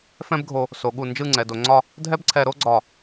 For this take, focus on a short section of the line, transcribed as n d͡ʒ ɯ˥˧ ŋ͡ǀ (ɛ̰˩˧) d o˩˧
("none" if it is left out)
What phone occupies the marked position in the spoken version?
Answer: ɛ˩˧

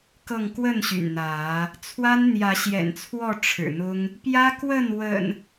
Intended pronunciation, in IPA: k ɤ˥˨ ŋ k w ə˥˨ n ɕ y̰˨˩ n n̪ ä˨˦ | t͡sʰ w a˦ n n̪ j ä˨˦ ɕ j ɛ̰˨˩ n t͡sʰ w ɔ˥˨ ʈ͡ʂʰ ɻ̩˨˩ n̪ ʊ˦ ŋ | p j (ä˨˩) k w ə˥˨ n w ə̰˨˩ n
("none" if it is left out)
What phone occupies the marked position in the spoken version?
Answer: ä˦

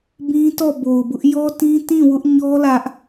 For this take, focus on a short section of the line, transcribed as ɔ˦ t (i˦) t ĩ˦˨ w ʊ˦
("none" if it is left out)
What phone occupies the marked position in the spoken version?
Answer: ĩ˦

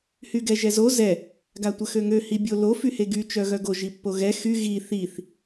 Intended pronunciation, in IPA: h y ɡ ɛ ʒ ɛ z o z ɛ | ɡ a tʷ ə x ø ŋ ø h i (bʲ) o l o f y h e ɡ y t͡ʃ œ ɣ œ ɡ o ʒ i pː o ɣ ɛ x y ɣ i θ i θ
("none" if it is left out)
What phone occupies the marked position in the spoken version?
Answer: bʲ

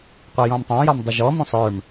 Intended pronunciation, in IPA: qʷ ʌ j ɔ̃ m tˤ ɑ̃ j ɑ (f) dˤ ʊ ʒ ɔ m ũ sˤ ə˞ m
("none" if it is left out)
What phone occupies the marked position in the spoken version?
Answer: m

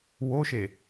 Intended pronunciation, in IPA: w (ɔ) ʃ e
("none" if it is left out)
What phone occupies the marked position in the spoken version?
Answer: o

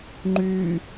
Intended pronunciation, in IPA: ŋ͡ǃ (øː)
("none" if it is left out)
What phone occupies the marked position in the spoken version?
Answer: yː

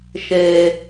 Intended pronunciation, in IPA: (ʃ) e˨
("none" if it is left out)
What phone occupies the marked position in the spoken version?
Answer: ʃ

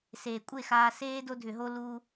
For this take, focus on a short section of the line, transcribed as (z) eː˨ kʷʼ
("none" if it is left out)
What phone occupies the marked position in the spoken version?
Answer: s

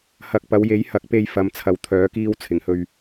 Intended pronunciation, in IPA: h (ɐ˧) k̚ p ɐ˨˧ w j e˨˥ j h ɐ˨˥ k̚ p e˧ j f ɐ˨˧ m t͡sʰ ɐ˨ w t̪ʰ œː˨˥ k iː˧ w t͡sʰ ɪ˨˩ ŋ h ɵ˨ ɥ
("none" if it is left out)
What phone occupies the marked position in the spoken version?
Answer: ɐ˨˥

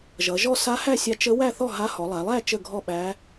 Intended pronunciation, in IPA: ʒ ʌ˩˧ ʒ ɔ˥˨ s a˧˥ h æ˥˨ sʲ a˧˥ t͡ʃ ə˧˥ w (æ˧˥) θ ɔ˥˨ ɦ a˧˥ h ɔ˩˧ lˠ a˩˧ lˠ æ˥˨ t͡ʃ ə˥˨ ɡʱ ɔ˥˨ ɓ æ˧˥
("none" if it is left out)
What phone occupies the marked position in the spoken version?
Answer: æ˥˨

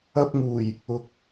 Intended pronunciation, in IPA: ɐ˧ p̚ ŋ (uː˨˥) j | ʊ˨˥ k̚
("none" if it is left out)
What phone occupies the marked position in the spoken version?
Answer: uː˨˩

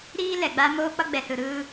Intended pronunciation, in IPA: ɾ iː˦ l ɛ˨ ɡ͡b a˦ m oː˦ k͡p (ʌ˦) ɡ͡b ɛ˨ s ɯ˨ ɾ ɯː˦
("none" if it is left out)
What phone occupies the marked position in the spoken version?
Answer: ʌ˦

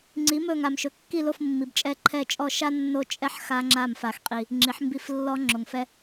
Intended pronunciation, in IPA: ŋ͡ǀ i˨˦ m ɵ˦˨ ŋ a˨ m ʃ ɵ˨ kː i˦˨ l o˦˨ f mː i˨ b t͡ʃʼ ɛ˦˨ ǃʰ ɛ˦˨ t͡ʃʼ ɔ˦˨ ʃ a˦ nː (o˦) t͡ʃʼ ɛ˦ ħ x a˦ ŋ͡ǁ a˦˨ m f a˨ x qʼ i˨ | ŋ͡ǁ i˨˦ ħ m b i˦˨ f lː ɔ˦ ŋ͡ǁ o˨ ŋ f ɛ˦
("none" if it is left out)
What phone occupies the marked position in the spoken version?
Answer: o˦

